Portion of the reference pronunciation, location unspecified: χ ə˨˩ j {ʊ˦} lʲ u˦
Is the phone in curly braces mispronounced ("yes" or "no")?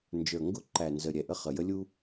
yes